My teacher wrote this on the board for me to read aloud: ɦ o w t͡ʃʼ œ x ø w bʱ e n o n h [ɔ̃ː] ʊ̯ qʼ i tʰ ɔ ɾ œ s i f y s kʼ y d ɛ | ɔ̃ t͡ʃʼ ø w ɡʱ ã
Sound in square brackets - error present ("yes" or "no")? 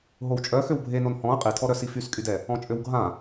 yes